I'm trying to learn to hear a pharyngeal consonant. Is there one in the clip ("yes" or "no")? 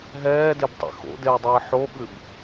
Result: yes